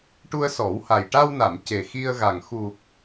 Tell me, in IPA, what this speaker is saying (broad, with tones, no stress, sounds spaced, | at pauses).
ʈ u˧ ə̯ s ɔ˨˩˦ w h a˨˩ j ʈ a˧ w n a˨˩˨ m c e˨˩ x i˧ ə̯ ɣ a˨˩ ŋ x u˨˩ k̚